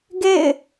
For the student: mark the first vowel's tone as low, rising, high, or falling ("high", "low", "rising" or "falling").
falling